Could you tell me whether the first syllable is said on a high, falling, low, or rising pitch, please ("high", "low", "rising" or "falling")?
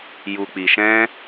low